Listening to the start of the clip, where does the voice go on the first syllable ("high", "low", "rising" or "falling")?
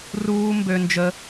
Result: high